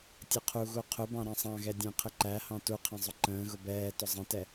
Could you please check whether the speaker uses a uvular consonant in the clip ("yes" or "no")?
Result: yes